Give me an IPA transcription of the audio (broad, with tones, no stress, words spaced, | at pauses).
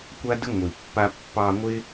kʷa˦də˦ ŋʷi˨pːa˦ pːɑ˧ŋʷɪ˦